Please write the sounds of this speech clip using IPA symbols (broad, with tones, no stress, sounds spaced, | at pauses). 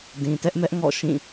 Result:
d ĩ˨ t ɛ˦ ʔ m ɛ˦ ʔ ŋ ɔ̰˦˨ ʃ ĩ˦˨